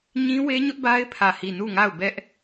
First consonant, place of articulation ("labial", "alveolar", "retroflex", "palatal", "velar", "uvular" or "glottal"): palatal